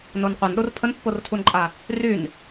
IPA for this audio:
n o n qʷ a n ɗ o r pʰ ə n pː o r tʰ u n ǃʼ a | r y n

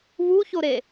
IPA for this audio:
β u ç o ɾ e

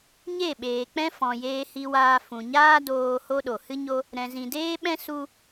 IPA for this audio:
ɲ e˦˨ ɓ eː˨ k͡p ɛ̃˦ f ɔ̃˨ j eː˧ h i˧ w aː˧ f ũ˨ ɲ aː˦ d oː˧ h o˦ ɗ o˨ h ɨ˦ ɲ o˦ | ɾ ɛ̃˨ z ĩ˨ d eː˦ ɓ ɛ̃˦ s u˦

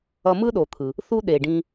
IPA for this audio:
ʌ˧ m ɯ˥ ɗ o˩ t̪ʰ ɯ˩ | θ u˥ ɗ e˩ ɖ ĩ˧

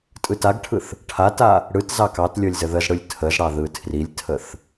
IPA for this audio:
tʼ ɯ t a ɡ ʈʰ ɯ θ | ʈʰ a t a | ɽ ɯ t z ɑ k ɑ t lʲ ɤ lʲ z ə ð ə z ɽ ɯ lʲ tʰ ə z ɽ ɑ ð ɯ tʰ r i lʲ tʰ ə θ

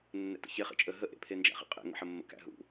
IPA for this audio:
nː ɛ̰ t ə̰ ç e χ ḛ t͡ʃʼ ə ɦ ə ʔ ḛ pʰ e n d͡ʒ æ̰ χ ḛ qʼ ḛ ŋ ə̰ ħ ə mː ə̰ k æ̰ ɦ ṵ

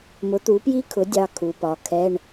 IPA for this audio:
m ʊ˩˥ t̪ u˩˥ p j i˦˥ kʰ ʊ˩˥ dʲ ɑ˦˥ kʰ u˩˧ p ɒ˩˥ kʰ ɛ˧˥˧ ɳ

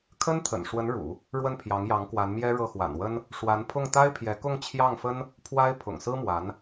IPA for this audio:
kʰ ə˥ n t̪ʰ ə̰˨˩ n ʂ w ə˧˥ n ɻ ṵ˨˩˦ | ɻ w ə˥˩ n pʰ j ɑ˧˥ ŋ j ɑ˧˥ ŋ k w a˧˥ n m j ɛ˥ ɻ ɤ˥˩ x w a̰˨˩ n w ə˥ n | ʂ w a˧˥ n pʰ ʊ˥˩ ŋ t̪ a˥ ɪ̯ pʰ j ɛ˧˥ k ʊ˥˧ ŋ t͡ɕʰ j ɑ˥˩ ŋ f ə˥ n | pʰ w a˥ ɪ̯ pʰ ʊ̰˨˩ ŋ s ɹ̩˥ m w a˧˥ n

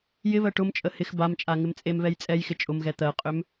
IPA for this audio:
j ɪ β ɜ ʈ ʊ m t͡ʃʼ ə h ɪ x b a m t͡ʃʼ a ŋ ɪ m t͡sʼ e m β ɛ j t͡sʼ ɛ j x ɪ t͡ʃʼ ʊ m ɣ ɛ t̪ ɜ qʼ ʏ m

